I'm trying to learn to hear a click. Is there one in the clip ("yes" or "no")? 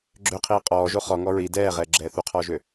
yes